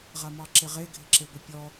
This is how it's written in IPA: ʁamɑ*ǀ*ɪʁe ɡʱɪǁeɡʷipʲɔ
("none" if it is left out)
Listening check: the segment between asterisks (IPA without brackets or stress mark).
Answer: ǁ